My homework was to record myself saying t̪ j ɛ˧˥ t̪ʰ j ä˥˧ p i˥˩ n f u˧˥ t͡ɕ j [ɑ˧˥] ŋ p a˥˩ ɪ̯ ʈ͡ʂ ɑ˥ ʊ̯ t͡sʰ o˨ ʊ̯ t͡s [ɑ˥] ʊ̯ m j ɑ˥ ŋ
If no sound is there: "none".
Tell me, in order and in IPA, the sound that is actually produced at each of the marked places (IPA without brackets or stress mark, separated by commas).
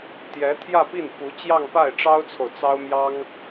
ɑ˥˧, ɑ˥